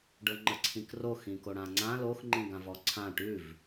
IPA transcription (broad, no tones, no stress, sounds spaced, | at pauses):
ɖ ɤ ŋ͡ǃ ə ǀʰ ĩ k r o x ĩ k o ɽ ã ŋ͡ǀ ã l o x ŋ͡ǃ ĩ ɡ ã v ɔ ǀʰ ã ʈ ʉ v